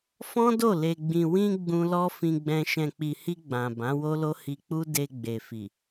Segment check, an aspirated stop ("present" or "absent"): absent